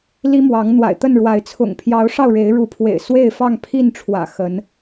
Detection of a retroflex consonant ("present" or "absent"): present